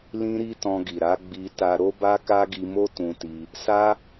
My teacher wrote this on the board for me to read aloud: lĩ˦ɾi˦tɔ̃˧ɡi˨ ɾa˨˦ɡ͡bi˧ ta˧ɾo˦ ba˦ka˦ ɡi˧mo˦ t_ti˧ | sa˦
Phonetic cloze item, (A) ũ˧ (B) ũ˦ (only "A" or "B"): A